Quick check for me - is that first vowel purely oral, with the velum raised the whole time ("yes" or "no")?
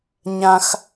no